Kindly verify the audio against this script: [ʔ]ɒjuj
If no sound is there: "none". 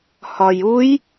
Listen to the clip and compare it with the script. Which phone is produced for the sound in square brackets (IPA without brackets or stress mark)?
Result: h